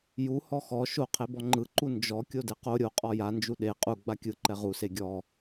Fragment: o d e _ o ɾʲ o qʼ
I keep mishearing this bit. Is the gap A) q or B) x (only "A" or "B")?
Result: A